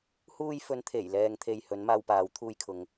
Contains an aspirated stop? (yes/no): yes